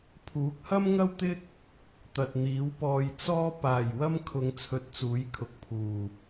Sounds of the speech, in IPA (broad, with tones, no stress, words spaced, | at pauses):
pʰuː˨˥k̚hɐ˥mŋɐ˥wt̪ɪ˥k̚ | t̪ɐ˨t̚n̪iː˨˥wpɔː˧j t͡sɔː˥ paː˨˩j wɐ˥m kʰʊ˧ŋt͡sʰɵ˧t̚ t͡suː˨˥jkʰʊ˨k̚pʰuː˨˩